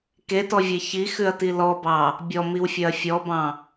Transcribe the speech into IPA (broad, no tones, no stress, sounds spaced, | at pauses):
k e t ɔ vʲ e ç i x ʉ ɐ̯ t i l ɔ b ɑ | bʲ ɔ m i w fʲ œ ɐ̯ fʲ ɔ b ɑ̃